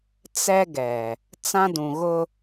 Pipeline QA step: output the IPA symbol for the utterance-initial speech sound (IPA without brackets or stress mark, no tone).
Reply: t͡s